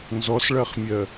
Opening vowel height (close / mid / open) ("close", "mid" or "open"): mid